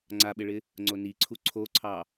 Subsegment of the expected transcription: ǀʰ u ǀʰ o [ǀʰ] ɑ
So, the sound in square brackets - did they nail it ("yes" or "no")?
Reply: yes